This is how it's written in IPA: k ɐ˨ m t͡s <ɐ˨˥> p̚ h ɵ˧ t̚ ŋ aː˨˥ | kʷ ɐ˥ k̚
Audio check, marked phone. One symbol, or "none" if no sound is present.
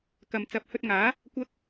ɐ˨˥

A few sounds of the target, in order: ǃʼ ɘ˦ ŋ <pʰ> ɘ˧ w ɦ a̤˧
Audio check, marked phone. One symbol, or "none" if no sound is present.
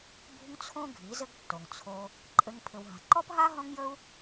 pʰ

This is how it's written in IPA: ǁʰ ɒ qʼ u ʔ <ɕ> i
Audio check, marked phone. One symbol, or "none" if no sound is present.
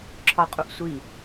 sʷ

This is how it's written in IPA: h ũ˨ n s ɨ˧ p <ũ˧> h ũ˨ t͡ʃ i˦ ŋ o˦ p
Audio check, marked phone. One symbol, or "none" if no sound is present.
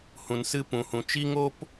ũ˨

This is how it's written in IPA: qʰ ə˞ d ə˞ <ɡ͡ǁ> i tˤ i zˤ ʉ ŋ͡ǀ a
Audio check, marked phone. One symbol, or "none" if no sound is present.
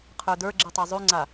ɡ͡ǁ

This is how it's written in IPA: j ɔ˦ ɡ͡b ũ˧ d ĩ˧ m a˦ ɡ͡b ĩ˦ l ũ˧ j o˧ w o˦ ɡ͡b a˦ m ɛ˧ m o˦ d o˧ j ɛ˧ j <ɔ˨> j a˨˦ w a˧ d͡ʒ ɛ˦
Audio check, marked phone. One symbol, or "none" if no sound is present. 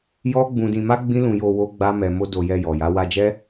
ɔ˨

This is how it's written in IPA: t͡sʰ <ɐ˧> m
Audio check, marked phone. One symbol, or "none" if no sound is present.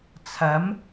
ɐ˨˥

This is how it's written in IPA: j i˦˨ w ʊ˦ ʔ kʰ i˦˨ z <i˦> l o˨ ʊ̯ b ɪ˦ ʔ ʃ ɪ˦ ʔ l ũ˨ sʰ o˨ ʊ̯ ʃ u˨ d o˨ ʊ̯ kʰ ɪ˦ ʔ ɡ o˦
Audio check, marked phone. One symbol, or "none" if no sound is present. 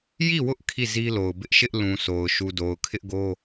i˦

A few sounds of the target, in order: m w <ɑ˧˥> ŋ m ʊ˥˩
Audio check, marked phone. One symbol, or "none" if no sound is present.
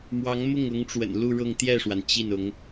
ɑ˧˥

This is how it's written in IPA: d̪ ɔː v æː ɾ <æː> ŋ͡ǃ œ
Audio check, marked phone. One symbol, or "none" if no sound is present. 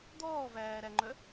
æ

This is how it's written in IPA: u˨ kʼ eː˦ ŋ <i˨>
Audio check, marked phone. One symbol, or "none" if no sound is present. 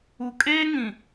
ĩ˨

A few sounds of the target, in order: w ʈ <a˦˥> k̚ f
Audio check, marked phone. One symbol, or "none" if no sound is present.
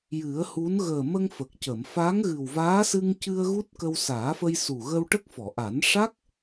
ə˦˥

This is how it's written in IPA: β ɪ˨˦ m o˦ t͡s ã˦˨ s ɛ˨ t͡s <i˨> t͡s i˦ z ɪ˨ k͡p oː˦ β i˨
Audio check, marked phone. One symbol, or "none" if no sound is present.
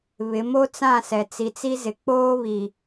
i˨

